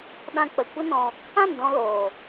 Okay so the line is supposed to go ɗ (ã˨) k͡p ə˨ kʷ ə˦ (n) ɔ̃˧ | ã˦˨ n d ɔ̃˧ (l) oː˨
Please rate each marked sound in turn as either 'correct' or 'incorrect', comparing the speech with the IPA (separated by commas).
incorrect, correct, correct